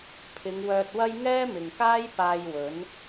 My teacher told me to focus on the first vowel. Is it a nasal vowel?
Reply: no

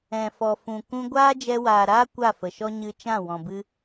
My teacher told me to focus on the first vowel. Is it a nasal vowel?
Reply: yes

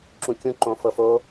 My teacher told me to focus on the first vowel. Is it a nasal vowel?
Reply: yes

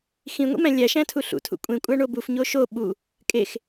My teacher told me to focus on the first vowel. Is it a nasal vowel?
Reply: yes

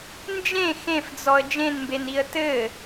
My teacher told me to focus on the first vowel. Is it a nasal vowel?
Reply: yes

